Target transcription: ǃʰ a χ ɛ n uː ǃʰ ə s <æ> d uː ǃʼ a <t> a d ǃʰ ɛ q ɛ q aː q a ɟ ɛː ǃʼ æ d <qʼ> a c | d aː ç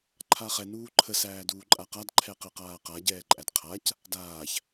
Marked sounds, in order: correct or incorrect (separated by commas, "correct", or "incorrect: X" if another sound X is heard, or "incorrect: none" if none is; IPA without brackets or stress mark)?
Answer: incorrect: æː, incorrect: q, incorrect: qʰ